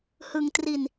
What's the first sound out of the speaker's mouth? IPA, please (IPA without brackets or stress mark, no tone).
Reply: h